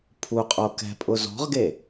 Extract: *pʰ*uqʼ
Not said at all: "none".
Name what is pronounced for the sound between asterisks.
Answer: pʰ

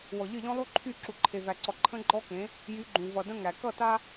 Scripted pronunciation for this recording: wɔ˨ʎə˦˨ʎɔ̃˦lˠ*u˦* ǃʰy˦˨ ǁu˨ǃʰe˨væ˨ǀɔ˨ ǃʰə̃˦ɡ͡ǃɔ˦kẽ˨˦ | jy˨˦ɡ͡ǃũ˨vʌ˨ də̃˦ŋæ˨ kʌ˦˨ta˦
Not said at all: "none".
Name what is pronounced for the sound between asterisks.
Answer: u˦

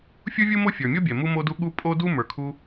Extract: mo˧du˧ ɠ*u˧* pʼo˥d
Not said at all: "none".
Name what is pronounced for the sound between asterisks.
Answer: u˥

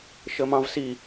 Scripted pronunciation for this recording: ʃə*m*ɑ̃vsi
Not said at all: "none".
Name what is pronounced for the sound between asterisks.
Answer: m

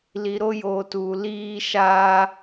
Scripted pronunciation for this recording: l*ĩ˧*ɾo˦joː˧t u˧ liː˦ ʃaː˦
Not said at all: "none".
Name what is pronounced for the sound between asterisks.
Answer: i˧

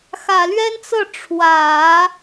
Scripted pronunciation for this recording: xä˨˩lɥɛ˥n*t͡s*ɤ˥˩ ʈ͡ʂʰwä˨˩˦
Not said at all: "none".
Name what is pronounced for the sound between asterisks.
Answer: t͡s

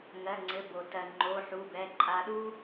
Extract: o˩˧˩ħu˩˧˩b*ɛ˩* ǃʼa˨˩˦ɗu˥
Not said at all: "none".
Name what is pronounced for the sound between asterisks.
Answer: ɛ˩˧˩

